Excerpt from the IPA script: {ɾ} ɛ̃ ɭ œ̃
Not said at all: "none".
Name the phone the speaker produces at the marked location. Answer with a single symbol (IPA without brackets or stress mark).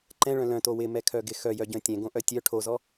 ǃ